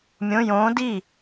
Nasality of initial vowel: nasal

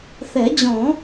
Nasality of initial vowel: oral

